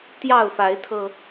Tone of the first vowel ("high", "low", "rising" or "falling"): falling